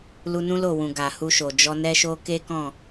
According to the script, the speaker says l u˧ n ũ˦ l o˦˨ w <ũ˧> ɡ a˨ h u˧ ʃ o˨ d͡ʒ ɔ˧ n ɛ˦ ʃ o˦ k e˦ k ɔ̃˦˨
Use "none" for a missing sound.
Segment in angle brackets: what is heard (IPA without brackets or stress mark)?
ũ˨